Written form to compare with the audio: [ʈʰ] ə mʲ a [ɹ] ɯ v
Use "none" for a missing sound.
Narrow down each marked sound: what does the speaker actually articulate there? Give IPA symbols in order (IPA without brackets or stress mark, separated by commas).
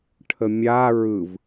ʈʰ, ɹ